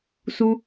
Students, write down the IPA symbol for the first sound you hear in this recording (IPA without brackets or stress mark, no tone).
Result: s